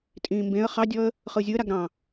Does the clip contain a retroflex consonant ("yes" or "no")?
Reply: no